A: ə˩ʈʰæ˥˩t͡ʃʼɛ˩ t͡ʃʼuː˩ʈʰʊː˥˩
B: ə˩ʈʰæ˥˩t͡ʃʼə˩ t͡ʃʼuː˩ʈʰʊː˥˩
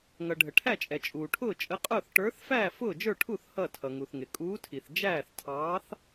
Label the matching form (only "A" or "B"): A